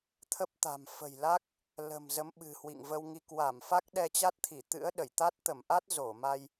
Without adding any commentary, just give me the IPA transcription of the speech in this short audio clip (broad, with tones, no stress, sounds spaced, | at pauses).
t̪ʰ ə˦˥ p̚ t̪ a̤˨˩ m f ə̤˨˩ j l a˦˥ k̚ | l ə̤˨˩ m z ə˨˦ m ɓ ɨ̤˨˩ h w ḭ˧˨ ŋ v ə˧ w ŋ i˧ k w a˧˩ m f a˦˥ k̚ ɗ ɛ˧ t͡ɕ a˦˥ t̚ t̪ʰ i˧˩ t̪ ɨ̰˧˥ ə̯ ɗ ə˧˩ j t̪ a˦˥ t̚ t̪ ə˧˩ m ʔ a˦˥ t̚ z o˧˩ m a˧ j